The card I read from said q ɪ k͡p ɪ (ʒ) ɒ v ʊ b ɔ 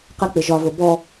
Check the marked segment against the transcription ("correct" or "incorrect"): correct